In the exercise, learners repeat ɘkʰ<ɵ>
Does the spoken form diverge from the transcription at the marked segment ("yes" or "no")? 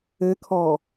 yes